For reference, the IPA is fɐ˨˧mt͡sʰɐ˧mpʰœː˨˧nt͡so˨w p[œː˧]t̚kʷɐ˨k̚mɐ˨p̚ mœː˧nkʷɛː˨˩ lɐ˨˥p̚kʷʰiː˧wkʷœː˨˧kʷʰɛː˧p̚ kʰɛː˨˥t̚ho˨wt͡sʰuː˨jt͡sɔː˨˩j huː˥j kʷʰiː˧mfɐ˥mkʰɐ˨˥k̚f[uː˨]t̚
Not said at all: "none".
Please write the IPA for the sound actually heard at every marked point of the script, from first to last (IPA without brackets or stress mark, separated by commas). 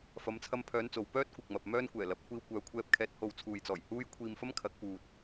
œː˥, uː˨